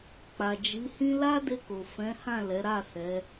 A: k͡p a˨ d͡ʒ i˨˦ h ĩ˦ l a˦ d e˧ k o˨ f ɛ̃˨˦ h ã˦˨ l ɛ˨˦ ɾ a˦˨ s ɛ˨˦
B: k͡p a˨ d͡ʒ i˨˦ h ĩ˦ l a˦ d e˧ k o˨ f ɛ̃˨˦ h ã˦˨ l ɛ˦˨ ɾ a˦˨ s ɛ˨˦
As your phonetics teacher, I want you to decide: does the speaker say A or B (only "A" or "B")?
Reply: A